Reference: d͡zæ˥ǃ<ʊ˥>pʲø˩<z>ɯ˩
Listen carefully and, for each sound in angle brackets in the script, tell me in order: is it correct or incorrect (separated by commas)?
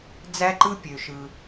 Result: incorrect, incorrect